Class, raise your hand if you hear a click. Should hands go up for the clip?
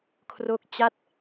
no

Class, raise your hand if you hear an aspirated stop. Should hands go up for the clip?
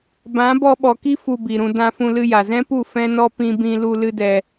no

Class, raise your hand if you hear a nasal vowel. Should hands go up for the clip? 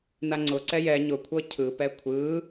no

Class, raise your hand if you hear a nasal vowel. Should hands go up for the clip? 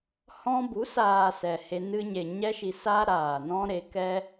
yes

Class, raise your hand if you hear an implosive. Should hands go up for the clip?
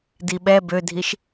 yes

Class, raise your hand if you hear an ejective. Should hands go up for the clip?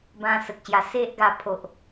no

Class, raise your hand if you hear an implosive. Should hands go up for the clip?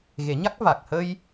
no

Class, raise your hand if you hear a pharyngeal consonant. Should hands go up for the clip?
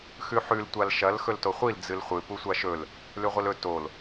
yes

